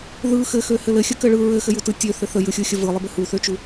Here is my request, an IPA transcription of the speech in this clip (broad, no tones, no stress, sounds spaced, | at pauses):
ð ɯ x ɘ x ø h ɘ l ɘ xʲ ə k ɘ ɭ ɯ ɹ ɘ x ɘ j u t ɯ tʲ ø θ ɘ θ ə j ɯ xʲ ɯ xʲ ə v ɯ lˠ ɘ b ɘ h u θ ø t͡ʃ u